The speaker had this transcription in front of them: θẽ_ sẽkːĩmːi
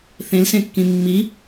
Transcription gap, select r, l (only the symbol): l